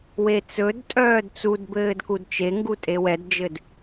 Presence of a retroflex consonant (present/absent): absent